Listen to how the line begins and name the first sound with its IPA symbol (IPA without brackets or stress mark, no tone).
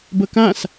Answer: b